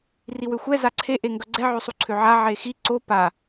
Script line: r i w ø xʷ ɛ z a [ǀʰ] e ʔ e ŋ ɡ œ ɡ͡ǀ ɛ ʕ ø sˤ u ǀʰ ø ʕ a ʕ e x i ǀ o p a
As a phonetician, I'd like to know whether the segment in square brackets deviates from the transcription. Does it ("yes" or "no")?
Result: no